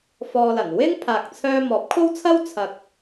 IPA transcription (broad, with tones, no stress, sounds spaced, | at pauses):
f ɔː˧ l ɐ˨˩ n w ɪ˥ ŋ pʰ aː˨ k̚ t͡sʰ œː˧ m ɔː˨˥ p̚ kʰ o˥ w t͡sʰ ɐ˥ w t͡sʰ ɐ˨ k̚